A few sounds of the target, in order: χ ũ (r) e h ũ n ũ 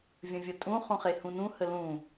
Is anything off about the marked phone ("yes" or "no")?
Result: yes